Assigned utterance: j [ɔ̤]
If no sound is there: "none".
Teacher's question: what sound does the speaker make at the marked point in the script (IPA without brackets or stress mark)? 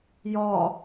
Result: ɔ